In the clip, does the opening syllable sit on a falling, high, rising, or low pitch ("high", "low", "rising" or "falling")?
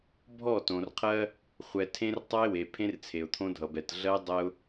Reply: falling